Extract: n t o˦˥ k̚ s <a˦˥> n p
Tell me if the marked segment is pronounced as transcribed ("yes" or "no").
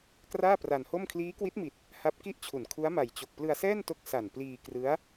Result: no